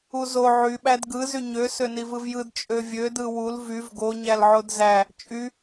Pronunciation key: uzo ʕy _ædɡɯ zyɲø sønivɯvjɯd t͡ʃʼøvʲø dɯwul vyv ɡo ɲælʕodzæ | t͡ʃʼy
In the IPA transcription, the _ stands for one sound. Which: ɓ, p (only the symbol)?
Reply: ɓ